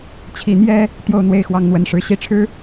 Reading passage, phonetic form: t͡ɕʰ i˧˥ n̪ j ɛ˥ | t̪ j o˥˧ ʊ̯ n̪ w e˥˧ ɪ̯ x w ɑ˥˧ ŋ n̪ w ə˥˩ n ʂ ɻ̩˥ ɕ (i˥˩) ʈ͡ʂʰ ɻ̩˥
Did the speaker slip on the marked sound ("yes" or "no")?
yes